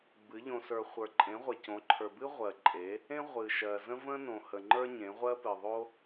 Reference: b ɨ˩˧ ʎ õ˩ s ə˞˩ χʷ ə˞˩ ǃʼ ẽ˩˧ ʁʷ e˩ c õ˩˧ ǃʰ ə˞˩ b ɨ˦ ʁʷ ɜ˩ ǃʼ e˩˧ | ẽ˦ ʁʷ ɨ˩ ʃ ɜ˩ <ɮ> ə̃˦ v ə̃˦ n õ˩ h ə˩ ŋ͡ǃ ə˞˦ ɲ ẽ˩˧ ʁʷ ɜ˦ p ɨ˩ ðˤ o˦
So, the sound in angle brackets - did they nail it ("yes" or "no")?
no